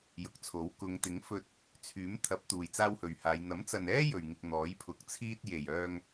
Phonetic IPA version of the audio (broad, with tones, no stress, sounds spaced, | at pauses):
j ʊ˨˥ k̚ t͡sʰ o˨˥ w k ʊ˨˧ ŋ t̪ ɪ˨˥ ŋ f ɵ˧ t̚ | t͡sʰ yː˨˥ m t̪ʰ ɐ˨˥ p̚ t̪ uː˨ j t͡s aː˥ w h ɵ˨ ɥ h aː˨˧ j n̪ ɐ˨˥ m t͡s ɐ˨ n ɛː˥ j ɵ˨ ɥ ŋ ɪ˧ k̚ n̪ ɔː˨˥ j pʰ ʊ˨˥ k̚ t͡sʰ iː˥ t̚ j e˨˩ j œː˧ ŋ